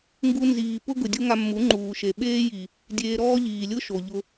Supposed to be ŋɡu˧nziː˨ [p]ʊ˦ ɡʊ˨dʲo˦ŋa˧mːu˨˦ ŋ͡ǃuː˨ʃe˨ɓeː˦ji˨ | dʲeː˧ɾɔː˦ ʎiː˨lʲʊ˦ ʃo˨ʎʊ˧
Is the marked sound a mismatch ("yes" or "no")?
no